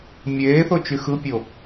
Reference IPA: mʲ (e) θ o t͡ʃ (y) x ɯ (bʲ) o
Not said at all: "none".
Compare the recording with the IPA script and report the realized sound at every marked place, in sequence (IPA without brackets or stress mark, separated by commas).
eː, y, pʲ